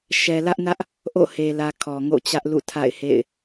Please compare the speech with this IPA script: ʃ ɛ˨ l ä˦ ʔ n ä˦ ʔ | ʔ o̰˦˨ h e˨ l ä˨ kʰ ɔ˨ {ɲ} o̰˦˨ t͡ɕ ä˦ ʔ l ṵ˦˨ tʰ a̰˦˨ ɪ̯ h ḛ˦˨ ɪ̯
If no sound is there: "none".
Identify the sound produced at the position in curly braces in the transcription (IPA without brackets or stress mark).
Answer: ŋ